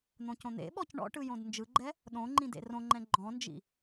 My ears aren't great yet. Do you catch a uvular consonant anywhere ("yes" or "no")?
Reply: no